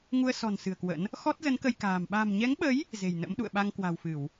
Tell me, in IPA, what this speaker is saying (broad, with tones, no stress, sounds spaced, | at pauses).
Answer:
ŋ u˧ ə̯ s ɔ̤˨˩ n s ɨ̤˨˩ ə̯ k w ə̰˧˥ n | x ɔ˦˥ t̚ z ə˨˦ n k ə˧ j k a̤ː˨˩ m ɓ a̤˨˩ m ɲ ɛ˨˦ ŋ ɓ ə˨˦ j | z e̤˨˩ j n ə̰˧˥ m ɗ ṵ˧˨ ə̯ ɓ a˧ ŋ k w a̤˨˩ w f ɨ˧˩˨ w